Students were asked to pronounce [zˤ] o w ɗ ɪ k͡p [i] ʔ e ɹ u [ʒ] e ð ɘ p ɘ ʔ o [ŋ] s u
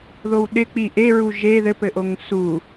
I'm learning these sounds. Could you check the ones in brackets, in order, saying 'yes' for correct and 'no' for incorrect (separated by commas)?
no, yes, yes, yes